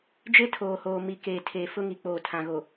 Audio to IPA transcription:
d͡ʒe˦tʰoː˨hoː˨ mi˨keː˨tʰeː˨ fʊ˦ŋi˨k͡poː˨ tʰã˨ɣo˨

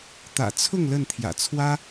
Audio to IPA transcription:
t̪ä̰˨˩t͡sʰʊ˥˨ŋ lə˥˨nt̪ʰjä̰˨˩ t͡sʰwä˦

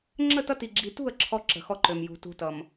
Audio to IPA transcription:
ŋ͡ǁə˦˨tʌ˦ ti˨ɡ͡ǁi˨ tṳ˦˨ə̯ ǁʰɔ˦ ǁə̤˨xɔ˦ǃø˨m jṳ˨tṳ˦tʌ˨m

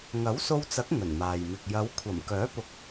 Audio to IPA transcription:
ŋɐ˨˥wso˧wt͡sɐ˨˥k̚ ŋɵ˨˩nmaː˨jmɪ˨k̚ jɐ˨˧wkʷʰɐ˨˩m kœː˨˥pʊ˨˥k̚

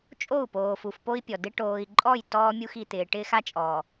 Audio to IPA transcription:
t͡ʃʼo˦˨u̯poː˨f u˨fpo˦i̯pʲɔ˨dɪ˦ ʈoː˨i̯ǃʼɔ˦˨j tɔː˦mʲu˦xi˨t̪ɪː˨ ʈɪː˦xa˦t͡ʃʼɔː˨

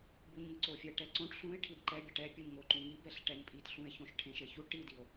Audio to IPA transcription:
buɲŋɯǀofʲɛ ʈɛǀõʈ ɬũe̯ ʈʰidǃɛbʲaʈ ɛpʲuɲŋoǃũ ŋi bɛɬʈɛɲpʼitɬũe̯ çõʃʈʰẽʃeçu ʈidio̯

